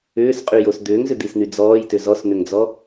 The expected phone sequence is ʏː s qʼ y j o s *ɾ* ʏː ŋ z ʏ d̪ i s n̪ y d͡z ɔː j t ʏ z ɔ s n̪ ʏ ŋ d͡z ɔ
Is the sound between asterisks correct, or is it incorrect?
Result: incorrect